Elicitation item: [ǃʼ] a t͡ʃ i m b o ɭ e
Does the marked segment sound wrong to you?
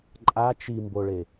no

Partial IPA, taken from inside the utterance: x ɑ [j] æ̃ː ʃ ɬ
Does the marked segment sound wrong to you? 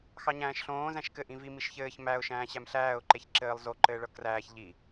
yes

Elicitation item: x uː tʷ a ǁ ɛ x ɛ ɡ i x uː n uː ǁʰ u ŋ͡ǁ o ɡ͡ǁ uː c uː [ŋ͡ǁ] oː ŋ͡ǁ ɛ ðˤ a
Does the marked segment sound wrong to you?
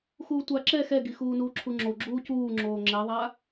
no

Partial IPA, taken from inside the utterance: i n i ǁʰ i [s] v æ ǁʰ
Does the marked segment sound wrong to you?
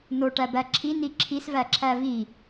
no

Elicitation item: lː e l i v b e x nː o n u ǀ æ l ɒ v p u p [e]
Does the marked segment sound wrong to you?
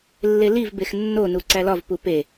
no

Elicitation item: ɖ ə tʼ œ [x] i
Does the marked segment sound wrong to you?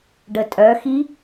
no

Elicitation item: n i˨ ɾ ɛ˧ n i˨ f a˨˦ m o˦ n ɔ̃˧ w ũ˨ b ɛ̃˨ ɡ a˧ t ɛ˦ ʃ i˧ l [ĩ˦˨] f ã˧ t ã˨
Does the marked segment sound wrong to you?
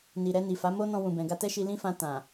yes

